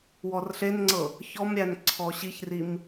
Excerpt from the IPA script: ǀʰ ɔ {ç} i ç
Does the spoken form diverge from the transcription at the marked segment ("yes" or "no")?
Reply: yes